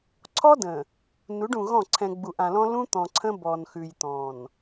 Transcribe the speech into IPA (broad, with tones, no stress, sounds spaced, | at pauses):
ǀʰ ɔ˦ d ə̃˨ | n u˨˦ ɖ ũ˨ ɣ ɔ̃˦˨ ǀʰ ɛ̃˨ ɡ͡b u˨ ʔ ã˨ l ɔ̃˦ l ũ˦ t̪ ɔ̃˨ ǀʰ ə̃˦ b ɔ˨ n x ʉ˨ j t̪ ɔ̃˨ n